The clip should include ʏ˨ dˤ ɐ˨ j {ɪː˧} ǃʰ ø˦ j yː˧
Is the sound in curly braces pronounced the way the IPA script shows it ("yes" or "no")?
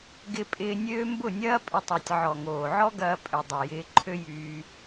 yes